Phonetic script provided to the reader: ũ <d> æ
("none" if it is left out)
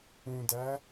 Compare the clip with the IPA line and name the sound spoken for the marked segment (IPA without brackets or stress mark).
d